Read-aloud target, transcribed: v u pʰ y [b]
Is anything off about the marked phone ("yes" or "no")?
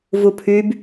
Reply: no